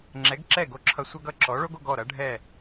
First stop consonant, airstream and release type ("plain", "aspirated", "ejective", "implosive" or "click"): click